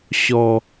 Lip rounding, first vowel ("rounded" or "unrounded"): rounded